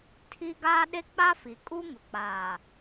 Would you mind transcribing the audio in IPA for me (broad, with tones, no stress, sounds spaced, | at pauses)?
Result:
tʰ i˦ ɡ aː˦ ɗ e˦ k͡p a˦ f i˨ kʼ u˦ ŋ ʊ˨ k͡p aː˨